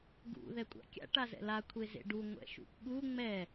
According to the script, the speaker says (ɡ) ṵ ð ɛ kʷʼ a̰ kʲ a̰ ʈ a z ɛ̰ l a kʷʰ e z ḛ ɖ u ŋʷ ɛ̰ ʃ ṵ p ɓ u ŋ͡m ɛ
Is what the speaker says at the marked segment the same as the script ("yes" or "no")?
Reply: yes